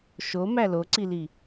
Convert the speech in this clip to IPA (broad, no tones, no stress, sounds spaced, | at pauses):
ʃ o m æ l o ǀ i l i